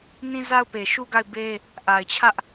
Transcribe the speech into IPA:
n ĩ˦ z a˦ ʊ̯ p e˨ ʃ u˦ ɡ a˦˨ ɪ̯ b e˦ | ʔ a˨ ɪ̯ t͡ɕʰ ä˦ ʔ

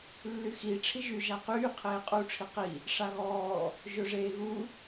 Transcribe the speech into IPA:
lː y x i ʈ͡ʂʰ i ʒ y ʒ a q yː qʰ eː qʼ u ʈ͡ʂʰ i q i | ʂ a ɣ ɔː | ʒ ɵ ʐ eː ɣ u

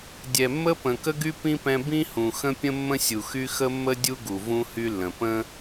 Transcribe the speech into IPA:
dʲ ɛ˨ mː ə˥ p ə̃˨ k ə˦ ɡ y˦ p ĩ˥ p ɛ̃˦ b ĩ˥ h ũ˨ x ə̃˥ pʲ ə̃˥ mː ə̃˥ sʲ u˨ x y˦ x ə˥ mː ə˥ dʲ u˥ ɡ u˨ v ũ˦ h y˦ lː ə̃˨ p ə̃˥

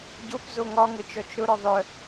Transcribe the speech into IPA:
ɟ o p z o ŋ ɒ ŋ ə t͡ʃ ɔ t͡ʃ ɾ ʊ ɾ ɔ ðˤ œ

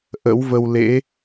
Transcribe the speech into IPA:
ʔ ə̰˧˥ w v ə˧ w l ḛ˧˥

